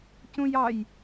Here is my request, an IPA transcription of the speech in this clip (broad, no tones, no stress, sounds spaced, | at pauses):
c ũ j ɑ j